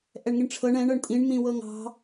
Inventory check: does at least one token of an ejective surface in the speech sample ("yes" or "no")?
yes